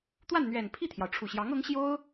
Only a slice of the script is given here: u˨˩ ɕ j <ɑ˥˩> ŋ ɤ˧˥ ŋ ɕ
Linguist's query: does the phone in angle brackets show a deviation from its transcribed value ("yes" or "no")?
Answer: yes